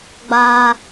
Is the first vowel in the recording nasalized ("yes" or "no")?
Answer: no